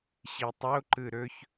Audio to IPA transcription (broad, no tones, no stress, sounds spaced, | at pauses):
ɕ i tˤ o ǃ ɯ ɾ ɵ ç